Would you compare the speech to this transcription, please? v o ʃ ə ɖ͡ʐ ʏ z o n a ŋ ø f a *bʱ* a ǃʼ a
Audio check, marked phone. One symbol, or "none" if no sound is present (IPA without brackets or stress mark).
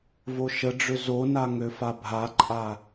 bʱ